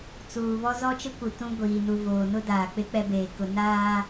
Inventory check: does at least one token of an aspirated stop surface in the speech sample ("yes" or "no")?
no